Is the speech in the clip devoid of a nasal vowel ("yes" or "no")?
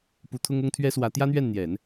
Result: yes